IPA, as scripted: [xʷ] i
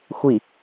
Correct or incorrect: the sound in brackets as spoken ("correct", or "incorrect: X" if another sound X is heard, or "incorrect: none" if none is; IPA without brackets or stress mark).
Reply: correct